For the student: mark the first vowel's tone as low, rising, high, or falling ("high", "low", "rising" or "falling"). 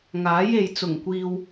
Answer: rising